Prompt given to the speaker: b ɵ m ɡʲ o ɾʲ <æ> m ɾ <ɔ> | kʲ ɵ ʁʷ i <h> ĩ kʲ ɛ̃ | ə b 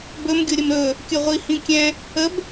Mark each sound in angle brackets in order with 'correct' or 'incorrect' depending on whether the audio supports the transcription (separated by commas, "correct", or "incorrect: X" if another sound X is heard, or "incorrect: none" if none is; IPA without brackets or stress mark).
incorrect: ə, incorrect: ɵ, correct